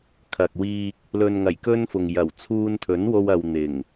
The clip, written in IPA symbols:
kʰ ɐ˨ k̚ w iː˧ k̚ | l ɵ˨ n ŋ ɐ˨˩ j k ɵ˥ n f ʊ˨ ŋ j ɐ˨˩ w t͡sʰ uː˧ n t̪ʰ ɵ˨˥ n w o˧ w ɐ˨ w n̪ ɪ˨˩ ŋ

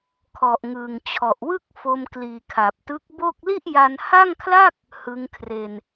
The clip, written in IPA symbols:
kʰ ɔ˨˩ ʔ ŋ ɯː˨˩ ŋ t͡ɕʰ ɔ˨˩ ʔ w ɯ˥˩ k̚ f o˧ m k l iː˨˩ kʰ a˨˩ p̚ t ɯ˦˥ k̚ b o˥˩ k̚ l i˥˩ ʔ j a˧ n h a˥˩ ŋ kʰ l a˥˩ k̚ | h ɯ˦˥ ŋ kʰ r e˧ n

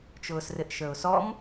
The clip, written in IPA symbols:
t͡ʃ ʊː s r ɪ ʔ ʃ ə˞ ʊ̯ s ɔ m

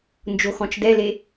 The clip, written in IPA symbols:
n d͡ʒ o x ɔ̃ t͡ʃ d ɛ l e

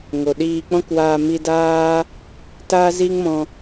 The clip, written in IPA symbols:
ŋ o˨ ɗ iː˧ k͡p ɔ̃˦ k w aː˧ m i˧ d aː˦ | t aː˦ z iː˦ ŋ m ɔ̃˧

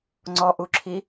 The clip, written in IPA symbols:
ŋ͡ǀ ɔ ʔ u ǁʰ i

